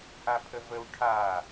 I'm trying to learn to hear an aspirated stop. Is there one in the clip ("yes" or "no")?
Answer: yes